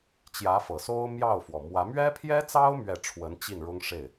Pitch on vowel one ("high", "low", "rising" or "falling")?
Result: rising